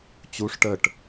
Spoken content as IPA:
t͡ɕ u ʂ ʈ ə ʈ

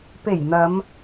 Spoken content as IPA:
p e˨˩ j n̪ ɐ˨˧ m

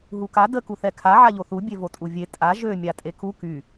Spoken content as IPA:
ɦ u k a d ə k u θ ɛ kʰ a ʕ a ʎ o θ u bʲ e v o tʼ u vʲ e tʼ a ʒ ø mʲ a tʼ e k u k y

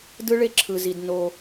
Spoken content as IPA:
d ɯ˦ ɭ e˦˨ ǁʰ ɯ˨ z i˨ d n o˦

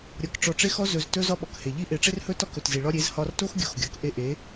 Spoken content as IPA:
ɾʲ ɒ˨˦ k ʈ͡ʂ ɔ˧ ʈ͡ʂ e˦ x ɔ˦ z ɵ˧ z t ɵ˦ z ɒ˦ ɓ ɔ˨ k h e˨ ʎ i˦ ʔ e˨˦ ʈ͡ʂ e˦ r h ɵ˦ t ɒ˦ k ɵ˨ t z i˨ ɭ ɒ˦ ɾʲ e˨˦ z h ɒ˧ r t o˦ x ɡʲ o˧ x ɡʲ ɔ˨˦ k ʔ e˦ ʔ e˨˦

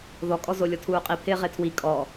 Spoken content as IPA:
ð ɔ kʼ ɔ z o lʲ ɔ tʰ uː qʼ i pʰ ɪː ʁ e tʰ w i kʼ ɔ

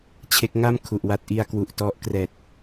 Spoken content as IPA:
t͡ɕʰ e˦˥ k̚ ŋ a˥˩ m kʰ u˨˩ ʔ w a˦˥ t̚ ʔ i˧ a̯ k w u˨˩ ʔ t ɔ˦˥ ʔ k r ɛː˨˩ t̚

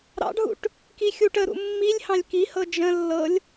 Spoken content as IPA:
ɾ ɑ̰ ɖʱ ṵ ʈ | k i xʲ u ʈ ə ɾ ṵ mː i lʲ h ɑ̃ lʲ k i h ɤ d͡ʒ ə̃ lː ɤ lʲ

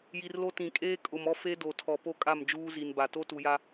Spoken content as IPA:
j i˨ r l o˦ t ĩ˨ kʼ eː˦ kʼ ʊ˨ m ɔ˦ f e˦ d o˨ tʰ ɔ˨ p o˦ kʼ a˦˨ m d͡ʒ uː˦ z i˨ n b a˨ t o˦ t u˨ j a˦

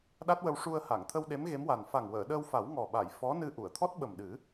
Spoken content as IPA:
ɗ a˦˥ t̚ w ə˧ w ʂ u˧ ə̯ h a˨˩˨ ŋ t̪ʰ ə˧ w ɗ e˧˥ m ɣ e˧˥ m w a˨˩ n f a˨˩ ŋ w əː˨˩˨ ɗ əː˧ w f a˨˩˦ w ŋ ɔ˨˩ ɓ a˨˩˨ j f ɔ˧˥ n ɨ˧ ʔ u˨˩˨ ə̯ t̪ʰ ɔ˦˥ t̚ ɓ ə˨˩ m ɗ ɨ˨˩˦

